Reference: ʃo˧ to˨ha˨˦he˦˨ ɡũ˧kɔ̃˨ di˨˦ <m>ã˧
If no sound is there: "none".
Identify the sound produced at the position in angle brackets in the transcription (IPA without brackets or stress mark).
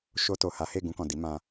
m